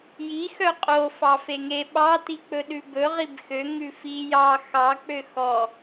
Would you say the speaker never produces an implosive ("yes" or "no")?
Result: no